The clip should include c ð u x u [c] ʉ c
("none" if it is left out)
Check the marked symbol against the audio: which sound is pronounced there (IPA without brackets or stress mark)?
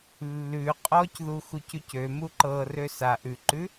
c